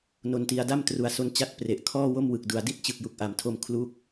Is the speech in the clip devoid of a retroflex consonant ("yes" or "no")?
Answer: yes